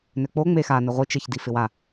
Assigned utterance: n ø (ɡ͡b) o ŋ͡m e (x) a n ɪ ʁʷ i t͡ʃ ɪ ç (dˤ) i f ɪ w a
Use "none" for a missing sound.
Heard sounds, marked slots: k͡p, x, d

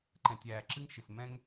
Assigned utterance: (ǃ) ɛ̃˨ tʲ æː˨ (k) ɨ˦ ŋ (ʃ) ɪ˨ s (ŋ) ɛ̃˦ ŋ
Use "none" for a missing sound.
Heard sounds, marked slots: ǃ, ǁ, ʃ, m

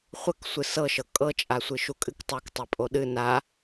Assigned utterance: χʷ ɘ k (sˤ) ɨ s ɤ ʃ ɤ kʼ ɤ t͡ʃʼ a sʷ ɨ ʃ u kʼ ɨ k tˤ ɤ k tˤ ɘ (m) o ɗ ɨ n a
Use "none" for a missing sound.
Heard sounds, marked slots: sʷ, pʼ

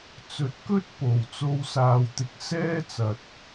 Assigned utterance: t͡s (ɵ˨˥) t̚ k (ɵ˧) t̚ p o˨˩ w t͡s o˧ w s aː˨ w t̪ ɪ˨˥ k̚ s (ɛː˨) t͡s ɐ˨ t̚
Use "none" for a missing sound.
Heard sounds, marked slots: ɵ˨˥, ɵ˥, ɛː˥

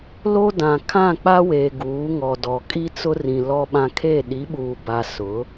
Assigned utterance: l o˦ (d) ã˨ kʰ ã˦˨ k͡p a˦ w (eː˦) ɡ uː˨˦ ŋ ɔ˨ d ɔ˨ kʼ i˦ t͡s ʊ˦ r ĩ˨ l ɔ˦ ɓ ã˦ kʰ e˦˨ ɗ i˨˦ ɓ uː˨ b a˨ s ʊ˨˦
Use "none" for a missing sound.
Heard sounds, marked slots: d, eː˨

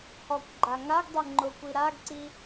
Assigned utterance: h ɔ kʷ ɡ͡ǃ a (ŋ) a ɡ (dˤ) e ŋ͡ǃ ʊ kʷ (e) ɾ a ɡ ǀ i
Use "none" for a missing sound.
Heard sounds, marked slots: ŋ, dˤ, i

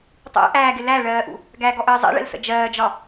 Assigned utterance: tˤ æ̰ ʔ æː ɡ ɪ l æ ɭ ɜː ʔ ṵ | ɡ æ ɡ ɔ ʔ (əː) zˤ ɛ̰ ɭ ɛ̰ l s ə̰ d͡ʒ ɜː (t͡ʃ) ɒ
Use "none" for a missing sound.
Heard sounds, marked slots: əː, d͡ʒ

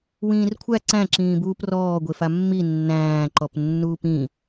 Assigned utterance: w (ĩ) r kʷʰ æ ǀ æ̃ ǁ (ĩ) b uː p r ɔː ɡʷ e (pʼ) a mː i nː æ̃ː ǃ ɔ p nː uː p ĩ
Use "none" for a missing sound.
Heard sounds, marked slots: ĩː, ĩː, f

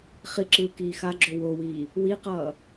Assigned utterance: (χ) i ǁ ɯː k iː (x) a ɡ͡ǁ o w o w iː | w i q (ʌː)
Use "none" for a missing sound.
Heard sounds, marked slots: χ, x, ʌː

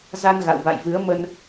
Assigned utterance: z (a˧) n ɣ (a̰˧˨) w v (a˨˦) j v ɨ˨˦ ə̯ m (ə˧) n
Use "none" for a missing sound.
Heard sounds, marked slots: a˧, a̰˧˨, a̰˧˨, ə˧

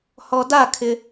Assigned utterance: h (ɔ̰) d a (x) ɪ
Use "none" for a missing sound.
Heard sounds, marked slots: ɔ, kʰ

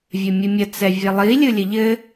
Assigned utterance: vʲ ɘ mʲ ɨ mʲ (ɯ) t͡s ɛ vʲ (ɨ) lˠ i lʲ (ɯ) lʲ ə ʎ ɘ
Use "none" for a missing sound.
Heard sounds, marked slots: ə, ɛ, ɯ

